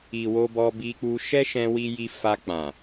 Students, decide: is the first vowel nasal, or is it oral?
oral